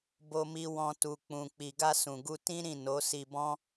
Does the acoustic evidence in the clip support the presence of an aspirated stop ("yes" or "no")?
no